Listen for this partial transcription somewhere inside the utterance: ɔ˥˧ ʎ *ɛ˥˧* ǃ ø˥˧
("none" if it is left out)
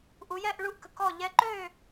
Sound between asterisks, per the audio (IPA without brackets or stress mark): ɛ˧˥